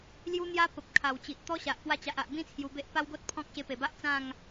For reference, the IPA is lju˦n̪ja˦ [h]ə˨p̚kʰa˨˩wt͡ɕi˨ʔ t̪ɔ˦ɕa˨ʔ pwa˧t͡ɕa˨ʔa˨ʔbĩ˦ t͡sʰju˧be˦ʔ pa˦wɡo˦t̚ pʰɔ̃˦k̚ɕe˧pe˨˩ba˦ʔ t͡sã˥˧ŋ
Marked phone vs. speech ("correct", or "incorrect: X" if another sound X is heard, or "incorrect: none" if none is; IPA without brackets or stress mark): incorrect: p